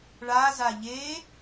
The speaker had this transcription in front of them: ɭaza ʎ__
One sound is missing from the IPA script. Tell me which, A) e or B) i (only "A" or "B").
A